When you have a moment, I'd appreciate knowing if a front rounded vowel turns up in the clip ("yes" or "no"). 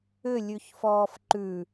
yes